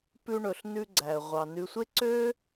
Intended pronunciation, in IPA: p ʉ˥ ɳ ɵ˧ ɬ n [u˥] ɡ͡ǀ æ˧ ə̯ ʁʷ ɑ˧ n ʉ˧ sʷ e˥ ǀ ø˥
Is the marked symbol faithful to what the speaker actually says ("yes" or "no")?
no